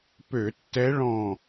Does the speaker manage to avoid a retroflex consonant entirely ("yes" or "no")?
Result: no